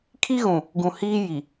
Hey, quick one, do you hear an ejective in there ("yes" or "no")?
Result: no